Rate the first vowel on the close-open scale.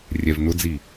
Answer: mid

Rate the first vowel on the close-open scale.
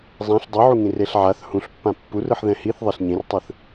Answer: open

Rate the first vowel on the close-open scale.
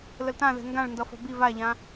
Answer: mid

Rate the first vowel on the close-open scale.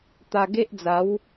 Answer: open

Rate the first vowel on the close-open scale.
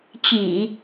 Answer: close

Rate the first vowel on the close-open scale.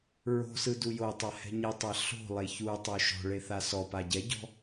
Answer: mid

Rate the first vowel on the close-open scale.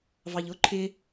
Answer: open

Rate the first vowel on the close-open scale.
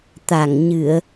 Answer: open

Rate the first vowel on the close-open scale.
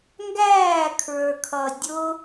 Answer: open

